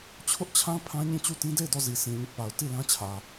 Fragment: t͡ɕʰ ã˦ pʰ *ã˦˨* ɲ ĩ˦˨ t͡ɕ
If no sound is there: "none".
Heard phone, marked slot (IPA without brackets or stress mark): ã˦